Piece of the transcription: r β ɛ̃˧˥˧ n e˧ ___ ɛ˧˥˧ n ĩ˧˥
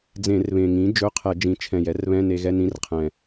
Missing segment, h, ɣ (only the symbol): ɣ